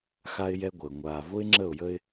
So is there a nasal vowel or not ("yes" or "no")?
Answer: no